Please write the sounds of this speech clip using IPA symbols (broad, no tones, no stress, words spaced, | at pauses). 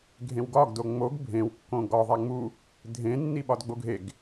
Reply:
ɡʱẽwɡɒɡ doŋ͡moɡ bʱẽw kːõɡɒ ðˤæŋ͡mu | dʱẽ nːiɓɒdɡ͡boɡʱeɡ